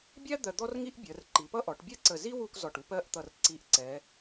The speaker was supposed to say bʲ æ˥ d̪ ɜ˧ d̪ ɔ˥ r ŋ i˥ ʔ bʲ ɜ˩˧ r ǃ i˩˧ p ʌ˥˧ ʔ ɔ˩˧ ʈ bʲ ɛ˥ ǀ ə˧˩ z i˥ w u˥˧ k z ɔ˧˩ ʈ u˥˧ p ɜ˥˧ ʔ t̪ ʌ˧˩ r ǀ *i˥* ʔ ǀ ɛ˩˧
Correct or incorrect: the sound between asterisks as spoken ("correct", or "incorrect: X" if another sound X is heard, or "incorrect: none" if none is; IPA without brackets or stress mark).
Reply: incorrect: i˧˩